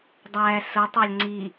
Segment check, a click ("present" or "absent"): present